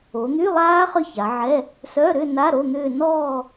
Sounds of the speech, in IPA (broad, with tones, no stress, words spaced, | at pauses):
o˩˧n̪y˧˥˧lˠaː˦˥ χʏ˥˧ça˩˧ʕɛ˧˥˧ | sœ˧˥˧ɾʏ˥˧na˧˥˧ ɾo˧˥˧n̪ʏː˥˧ nɔː˥˧